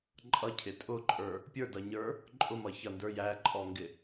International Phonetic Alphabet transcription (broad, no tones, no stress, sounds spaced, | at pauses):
ǃʼ ʌ cʰ ɪ tʼ ʊ ǃʼ ə˞ | pʲ ə˞ d ʌ ɲ ə˞ | ǃʼ ʊ m ʌ ç ʌ n d ə˞ j æ ǃʼ ɔ ŋ ɡ ɪ